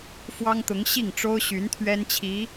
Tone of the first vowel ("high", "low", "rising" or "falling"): high